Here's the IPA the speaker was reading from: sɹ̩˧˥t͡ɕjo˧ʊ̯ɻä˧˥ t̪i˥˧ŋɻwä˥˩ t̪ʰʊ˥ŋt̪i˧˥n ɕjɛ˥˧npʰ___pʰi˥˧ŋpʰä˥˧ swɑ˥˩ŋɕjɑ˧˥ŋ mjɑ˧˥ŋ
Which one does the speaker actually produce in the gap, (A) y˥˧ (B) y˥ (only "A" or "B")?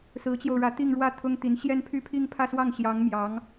A